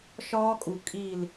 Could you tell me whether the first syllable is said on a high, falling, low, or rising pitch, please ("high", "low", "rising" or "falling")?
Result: high